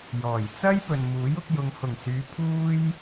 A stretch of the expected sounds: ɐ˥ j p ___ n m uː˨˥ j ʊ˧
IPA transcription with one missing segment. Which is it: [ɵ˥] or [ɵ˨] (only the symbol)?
ɵ˨